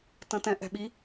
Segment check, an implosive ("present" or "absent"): present